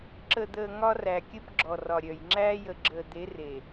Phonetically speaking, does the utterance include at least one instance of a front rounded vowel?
yes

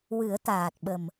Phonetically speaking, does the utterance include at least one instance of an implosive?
yes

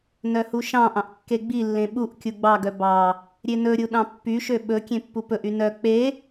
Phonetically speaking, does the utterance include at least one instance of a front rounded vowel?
yes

